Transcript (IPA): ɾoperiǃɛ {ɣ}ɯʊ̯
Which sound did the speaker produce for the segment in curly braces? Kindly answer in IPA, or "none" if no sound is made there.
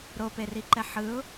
ħ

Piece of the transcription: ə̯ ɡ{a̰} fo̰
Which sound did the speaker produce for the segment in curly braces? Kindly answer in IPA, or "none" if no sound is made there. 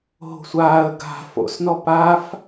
a̤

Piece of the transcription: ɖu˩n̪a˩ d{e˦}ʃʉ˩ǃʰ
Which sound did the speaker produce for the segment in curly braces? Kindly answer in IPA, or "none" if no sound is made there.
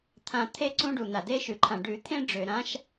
e˦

